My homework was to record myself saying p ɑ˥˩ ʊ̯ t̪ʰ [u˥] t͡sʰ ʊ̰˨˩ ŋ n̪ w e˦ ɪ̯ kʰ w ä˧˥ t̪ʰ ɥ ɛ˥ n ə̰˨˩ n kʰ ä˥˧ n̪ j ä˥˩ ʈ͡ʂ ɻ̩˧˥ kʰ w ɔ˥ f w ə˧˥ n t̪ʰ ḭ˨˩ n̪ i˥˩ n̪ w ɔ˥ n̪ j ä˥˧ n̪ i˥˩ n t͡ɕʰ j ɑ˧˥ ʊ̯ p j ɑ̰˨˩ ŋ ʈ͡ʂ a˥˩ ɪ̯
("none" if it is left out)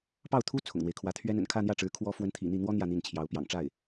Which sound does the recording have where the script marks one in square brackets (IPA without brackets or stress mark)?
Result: u˥